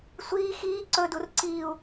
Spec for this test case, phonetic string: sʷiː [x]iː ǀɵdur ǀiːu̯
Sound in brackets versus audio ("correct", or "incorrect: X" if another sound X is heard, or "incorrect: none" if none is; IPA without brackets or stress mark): correct